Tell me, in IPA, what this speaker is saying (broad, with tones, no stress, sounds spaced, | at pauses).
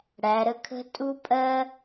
ɽ æ˩˧ ɾ ə˧˥ kʰ ə̤˥ tʼ u˥ pʼ ɜ˥